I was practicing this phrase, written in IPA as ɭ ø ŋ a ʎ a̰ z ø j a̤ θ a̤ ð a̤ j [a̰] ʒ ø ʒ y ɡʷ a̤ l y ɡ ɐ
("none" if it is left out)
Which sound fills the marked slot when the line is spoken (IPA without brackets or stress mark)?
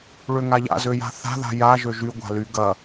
a